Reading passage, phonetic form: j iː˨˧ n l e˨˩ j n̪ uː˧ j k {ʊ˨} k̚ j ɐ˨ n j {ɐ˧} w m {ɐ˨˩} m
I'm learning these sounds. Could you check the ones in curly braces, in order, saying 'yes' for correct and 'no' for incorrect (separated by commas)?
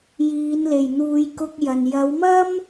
no, no, no